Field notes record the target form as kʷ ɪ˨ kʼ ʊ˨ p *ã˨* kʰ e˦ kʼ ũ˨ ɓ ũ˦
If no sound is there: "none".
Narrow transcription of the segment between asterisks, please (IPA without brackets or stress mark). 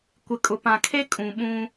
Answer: ã˨